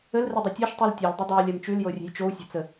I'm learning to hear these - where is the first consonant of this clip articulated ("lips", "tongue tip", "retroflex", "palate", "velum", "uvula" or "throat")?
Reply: tongue tip